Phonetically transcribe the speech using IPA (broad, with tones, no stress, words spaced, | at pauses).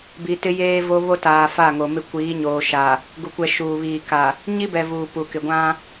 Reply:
bi˨tɪ˦ jeː˦ vo˦βo˦taː˨ fa˦˨ŋo˨mɪ˦ kʷiː˨˦ɲoː˨ʃa˨ | ɡu˨kʷɛ˨ ʃuː˨βiː˨ka˨ | ɲi˦bɛ˨ vuː˨pu˨kɪ˨ ɡʷã˦